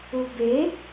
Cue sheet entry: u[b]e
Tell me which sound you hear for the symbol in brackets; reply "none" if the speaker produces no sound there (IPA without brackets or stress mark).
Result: b